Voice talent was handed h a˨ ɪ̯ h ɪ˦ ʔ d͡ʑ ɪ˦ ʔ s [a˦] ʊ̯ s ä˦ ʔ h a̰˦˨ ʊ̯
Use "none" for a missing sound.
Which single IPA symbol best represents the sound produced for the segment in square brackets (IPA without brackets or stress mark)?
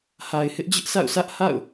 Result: a̰˦˨